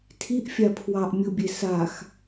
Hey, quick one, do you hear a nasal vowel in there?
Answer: no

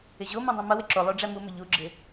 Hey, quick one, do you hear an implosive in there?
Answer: no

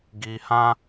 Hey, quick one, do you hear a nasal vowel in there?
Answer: yes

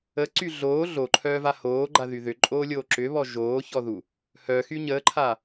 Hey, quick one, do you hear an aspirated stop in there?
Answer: yes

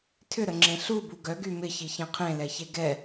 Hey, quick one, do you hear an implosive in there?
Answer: no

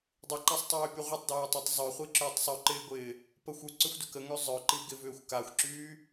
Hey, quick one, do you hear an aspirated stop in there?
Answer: no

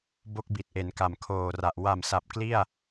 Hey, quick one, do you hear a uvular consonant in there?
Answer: no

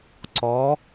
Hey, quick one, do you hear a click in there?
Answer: yes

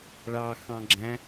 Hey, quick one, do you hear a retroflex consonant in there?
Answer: yes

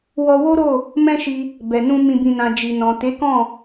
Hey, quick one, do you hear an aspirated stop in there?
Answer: no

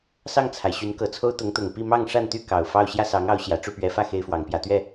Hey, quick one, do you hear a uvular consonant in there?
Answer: no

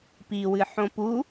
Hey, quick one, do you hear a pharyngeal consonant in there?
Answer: yes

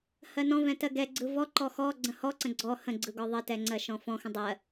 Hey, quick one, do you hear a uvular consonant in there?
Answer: no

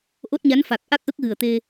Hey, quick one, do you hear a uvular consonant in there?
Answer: no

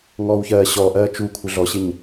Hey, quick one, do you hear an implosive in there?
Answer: no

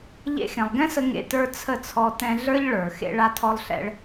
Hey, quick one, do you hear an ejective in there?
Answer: no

